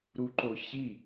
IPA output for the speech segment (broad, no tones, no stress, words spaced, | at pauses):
ɾuǃoçi